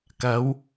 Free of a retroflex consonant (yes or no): yes